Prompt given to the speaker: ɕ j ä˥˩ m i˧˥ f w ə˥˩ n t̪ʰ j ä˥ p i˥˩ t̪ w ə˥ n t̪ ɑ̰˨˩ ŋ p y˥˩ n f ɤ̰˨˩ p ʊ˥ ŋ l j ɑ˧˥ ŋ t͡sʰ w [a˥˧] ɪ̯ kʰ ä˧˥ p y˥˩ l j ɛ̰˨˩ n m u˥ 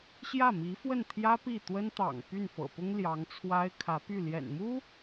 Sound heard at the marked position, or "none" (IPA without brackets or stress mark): a˥